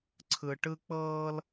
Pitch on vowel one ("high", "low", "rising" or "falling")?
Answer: high